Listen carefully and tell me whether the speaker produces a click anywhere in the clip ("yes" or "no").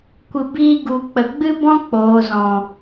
no